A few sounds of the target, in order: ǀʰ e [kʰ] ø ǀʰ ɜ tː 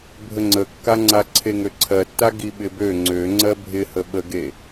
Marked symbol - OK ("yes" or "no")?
no